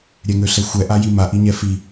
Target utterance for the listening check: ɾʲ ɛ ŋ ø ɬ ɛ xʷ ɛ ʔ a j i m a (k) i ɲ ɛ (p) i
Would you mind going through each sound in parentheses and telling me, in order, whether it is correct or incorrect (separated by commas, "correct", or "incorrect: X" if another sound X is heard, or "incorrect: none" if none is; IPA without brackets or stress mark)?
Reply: incorrect: ʔ, incorrect: f